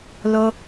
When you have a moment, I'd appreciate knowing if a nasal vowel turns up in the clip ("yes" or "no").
no